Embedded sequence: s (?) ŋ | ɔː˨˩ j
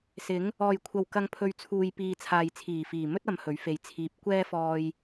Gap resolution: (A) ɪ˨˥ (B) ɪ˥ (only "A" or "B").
A